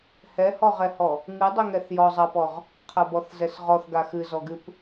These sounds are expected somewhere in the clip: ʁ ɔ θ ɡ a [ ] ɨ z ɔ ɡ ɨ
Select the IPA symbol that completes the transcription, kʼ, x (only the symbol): x